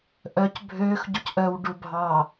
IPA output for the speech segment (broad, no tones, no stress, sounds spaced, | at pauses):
ʔ œ c bʱ øː x ɟ u c ʔ œ w ɖ u bʱ ɑ